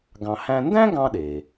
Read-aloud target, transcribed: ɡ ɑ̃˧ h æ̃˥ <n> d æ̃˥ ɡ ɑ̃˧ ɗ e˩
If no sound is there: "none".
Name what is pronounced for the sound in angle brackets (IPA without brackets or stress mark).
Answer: n